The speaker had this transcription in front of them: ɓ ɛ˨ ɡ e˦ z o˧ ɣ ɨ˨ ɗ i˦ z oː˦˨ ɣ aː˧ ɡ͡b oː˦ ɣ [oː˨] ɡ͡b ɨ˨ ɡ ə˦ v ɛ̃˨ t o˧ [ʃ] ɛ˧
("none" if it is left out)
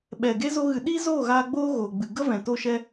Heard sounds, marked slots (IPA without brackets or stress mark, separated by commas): oː˨, ʃ